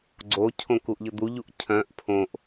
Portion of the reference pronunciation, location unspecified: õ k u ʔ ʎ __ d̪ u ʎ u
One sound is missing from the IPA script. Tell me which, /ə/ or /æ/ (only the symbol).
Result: ə